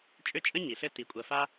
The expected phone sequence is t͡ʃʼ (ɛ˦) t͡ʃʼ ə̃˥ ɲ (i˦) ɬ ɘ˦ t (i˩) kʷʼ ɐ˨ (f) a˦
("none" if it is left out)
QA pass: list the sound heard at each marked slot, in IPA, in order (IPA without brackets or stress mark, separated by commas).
ʏ˦, i˩, i˩, f